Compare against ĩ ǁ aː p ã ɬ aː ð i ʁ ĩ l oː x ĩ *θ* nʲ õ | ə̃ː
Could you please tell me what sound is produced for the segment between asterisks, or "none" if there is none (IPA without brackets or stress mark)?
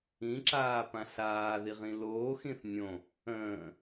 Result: θ